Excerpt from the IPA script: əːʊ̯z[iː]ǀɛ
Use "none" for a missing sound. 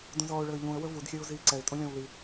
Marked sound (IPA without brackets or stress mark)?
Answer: iː